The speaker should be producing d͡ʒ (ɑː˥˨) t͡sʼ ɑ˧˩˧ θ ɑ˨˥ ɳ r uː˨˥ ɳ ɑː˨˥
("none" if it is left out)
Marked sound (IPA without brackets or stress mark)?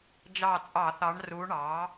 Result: ɑː˧˩